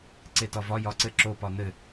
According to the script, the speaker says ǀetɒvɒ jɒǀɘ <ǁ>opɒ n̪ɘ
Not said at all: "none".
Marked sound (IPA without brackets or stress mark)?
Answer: ǁ